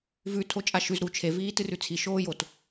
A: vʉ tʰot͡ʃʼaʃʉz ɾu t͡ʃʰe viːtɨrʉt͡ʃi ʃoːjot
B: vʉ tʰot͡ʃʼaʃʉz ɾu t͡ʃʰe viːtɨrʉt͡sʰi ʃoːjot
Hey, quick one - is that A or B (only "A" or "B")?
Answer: B